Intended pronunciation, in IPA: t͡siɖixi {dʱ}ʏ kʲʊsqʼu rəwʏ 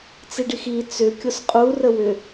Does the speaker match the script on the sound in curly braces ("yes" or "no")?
no